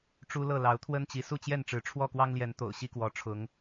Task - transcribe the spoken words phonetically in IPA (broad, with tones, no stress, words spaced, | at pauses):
ʈ͡ʂu˦lɤ˥˨ lɑ˨˦ʊ̯t̪ʰwə˦nt͡ɕi˨˦ su˥˨t͡ɕjɛ˥˨nʈ͡ʂɻ̩˨˦ ʈ͡ʂʰwɔ˥˨kwɑ˦ŋljɛ˨˦n t̪o̰˨˩ʊ̯ɕi˦kwɔ˨˦ ʈ͡ʂʰʊ˨˦ŋ